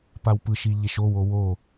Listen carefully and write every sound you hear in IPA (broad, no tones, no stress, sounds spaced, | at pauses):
p a w p ɯ ʃ i ʎ e ʃ o w o w o